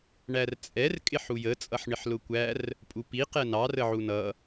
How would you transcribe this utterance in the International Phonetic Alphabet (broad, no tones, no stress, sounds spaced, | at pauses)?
ɳ æ r t͡sʼ ɛ r kʼ ɪ ħ u j ə t͡sʼ ʌ ħ ɳ ɪ ħ l ʊ kʷ æ r | pʼ u p i q ɛ n ɑ r ə ʕ u n ʌ